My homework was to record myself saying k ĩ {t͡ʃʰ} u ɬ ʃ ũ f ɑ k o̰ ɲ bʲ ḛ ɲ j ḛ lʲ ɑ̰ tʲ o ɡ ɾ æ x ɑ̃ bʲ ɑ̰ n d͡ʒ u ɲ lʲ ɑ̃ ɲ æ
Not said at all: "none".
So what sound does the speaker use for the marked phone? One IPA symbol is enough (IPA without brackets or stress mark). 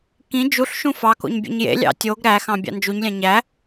d͡ʒ